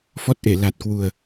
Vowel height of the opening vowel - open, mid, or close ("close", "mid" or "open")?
mid